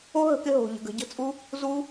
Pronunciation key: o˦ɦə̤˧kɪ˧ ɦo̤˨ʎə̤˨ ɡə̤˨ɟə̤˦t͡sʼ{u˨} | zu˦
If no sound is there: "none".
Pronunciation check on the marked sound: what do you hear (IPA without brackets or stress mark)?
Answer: u˦